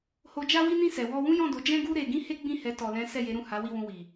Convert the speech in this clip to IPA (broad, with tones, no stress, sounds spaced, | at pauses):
h o˧ d͡ʒ a˦ w i˦ n ĩ˦˨ s ɛ˨ w ɔ˧ w ũ˦ j ɔ̃˦˨ d o˨˦ d͡ʒ ɛ̃˦ ɡ u˦ ɾ e˧ ɡ ĩ˦ h e˦ ɡ͡b ĩ˦˨ h ɛ˨˦ t ɔ˧ l ɛ̃˦ s ɛ˦˨ j e˨˦ ɾ ũ˦˨ h a˨˦ w i˦˨ w ũ˧ w i˨